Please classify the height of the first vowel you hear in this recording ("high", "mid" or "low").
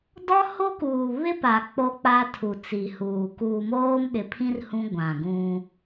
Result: mid